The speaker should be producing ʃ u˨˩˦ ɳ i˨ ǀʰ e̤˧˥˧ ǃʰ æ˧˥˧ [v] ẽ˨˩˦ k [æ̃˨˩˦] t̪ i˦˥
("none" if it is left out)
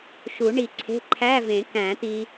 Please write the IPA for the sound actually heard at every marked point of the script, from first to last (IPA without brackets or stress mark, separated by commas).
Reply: v, æ̃˨˩˦